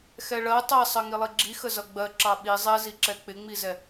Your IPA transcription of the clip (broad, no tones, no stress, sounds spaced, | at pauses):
x ɛ ɭ ɜ tˤ ɛ sˤ ɜ ŋ i lˠ i ɡ͡ǁ i x ə z ʌ ɡ͡b ɜ ǁ ɑ ɓ i zˤ ɛ z i ǁ ɛ k͡p ɪ ŋ͡m i z ɛ